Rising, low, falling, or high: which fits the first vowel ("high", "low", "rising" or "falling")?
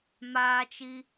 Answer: high